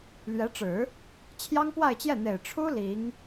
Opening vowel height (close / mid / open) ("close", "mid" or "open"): mid